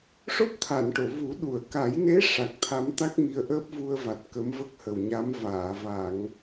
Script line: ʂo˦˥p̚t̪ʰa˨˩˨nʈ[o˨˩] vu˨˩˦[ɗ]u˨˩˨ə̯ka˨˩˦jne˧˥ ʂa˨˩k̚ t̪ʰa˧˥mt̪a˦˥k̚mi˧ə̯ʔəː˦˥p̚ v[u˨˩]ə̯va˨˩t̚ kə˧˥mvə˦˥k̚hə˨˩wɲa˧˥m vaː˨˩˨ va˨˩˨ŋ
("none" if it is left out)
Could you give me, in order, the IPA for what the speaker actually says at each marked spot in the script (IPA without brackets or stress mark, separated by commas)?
o˨˩˨, ɗ, u˧